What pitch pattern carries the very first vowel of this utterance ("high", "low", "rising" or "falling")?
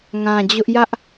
low